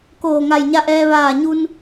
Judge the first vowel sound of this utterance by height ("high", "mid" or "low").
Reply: mid